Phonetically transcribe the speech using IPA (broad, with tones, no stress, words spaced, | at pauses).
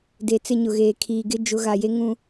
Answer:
de˨t͡sɪ˦˨ɲʊ˨ɣeː˨ kʰiː˨ɡɪ˦ d͡ʒʊ˨˦ɣa˨je˦ŋũ˦